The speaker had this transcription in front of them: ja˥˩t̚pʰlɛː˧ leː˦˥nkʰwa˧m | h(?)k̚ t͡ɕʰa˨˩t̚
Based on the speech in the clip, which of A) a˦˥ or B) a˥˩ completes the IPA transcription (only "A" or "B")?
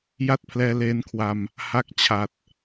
A